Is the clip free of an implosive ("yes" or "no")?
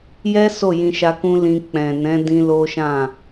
yes